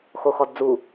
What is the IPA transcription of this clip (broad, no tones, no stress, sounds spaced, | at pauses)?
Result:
x o x ɔ d d͡z u